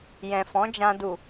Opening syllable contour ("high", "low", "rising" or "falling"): low